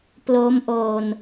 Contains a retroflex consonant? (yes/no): no